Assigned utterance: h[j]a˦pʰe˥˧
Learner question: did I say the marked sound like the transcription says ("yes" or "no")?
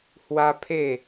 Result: no